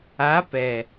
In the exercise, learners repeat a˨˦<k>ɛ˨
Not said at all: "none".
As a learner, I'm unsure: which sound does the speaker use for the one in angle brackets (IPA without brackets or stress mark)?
p